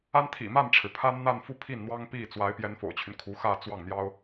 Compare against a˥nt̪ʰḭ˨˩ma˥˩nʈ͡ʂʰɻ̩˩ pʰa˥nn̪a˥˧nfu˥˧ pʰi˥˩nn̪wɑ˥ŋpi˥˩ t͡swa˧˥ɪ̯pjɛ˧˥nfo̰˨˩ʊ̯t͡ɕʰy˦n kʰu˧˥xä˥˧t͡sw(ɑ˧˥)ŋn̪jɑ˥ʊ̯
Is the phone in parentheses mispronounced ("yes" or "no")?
yes